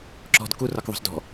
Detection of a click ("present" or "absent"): present